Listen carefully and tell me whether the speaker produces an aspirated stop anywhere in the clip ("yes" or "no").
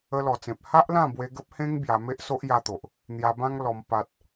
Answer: no